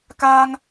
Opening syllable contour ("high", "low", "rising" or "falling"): high